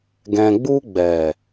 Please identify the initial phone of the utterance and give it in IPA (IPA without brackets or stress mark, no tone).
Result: ɡ